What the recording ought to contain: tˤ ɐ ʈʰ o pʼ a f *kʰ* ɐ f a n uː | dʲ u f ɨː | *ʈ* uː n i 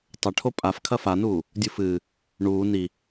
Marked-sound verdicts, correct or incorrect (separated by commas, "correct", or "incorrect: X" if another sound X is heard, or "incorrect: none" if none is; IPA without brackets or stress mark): correct, incorrect: ɳ